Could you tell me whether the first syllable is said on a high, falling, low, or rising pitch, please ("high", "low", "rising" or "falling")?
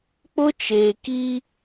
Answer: high